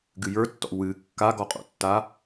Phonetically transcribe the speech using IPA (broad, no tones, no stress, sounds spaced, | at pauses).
ɡ ɨ j ə˞ tː ɔ̰ w ɨ kː a ɡ ɔ qʼ o̰ tː a